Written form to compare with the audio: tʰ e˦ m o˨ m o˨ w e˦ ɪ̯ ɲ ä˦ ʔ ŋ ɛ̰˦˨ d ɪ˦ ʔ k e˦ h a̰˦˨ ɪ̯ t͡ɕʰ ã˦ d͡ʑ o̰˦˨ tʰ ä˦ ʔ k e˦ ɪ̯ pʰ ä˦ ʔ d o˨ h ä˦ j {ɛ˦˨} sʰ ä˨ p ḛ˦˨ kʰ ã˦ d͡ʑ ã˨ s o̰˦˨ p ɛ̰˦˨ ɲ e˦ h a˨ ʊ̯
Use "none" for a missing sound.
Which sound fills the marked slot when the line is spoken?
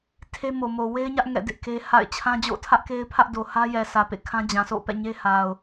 ɛ˨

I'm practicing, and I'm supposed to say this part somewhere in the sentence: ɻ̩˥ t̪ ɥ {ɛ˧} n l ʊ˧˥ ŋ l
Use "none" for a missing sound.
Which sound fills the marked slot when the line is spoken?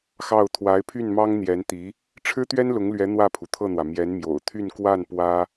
ɛ˥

